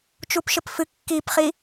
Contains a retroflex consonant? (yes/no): no